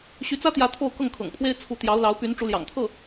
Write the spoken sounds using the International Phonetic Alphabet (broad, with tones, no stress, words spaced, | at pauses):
ɕy˧˥t͡sä˥t̪jä˧˥ t̪ʰo˥˧ʊ̯kɤ˥˩ŋkʰɤ̰˨˩ŋpʰwe˥ɪ̯ t͡sʰu˧˥t̪jɑ˧˥ʊ̯ lɑ˧˥ʊ̯py˧˥n ʈ͡ʂu˧˥ljɑ̰˨˩ŋt̪ʰɤ˥˩